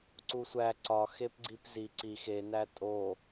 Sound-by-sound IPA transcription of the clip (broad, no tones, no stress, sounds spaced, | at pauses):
ǀ u sʷ æ ǀ ɒ x e p ɡ͡ǀ i p z i ǀ i x e n æ tʼ o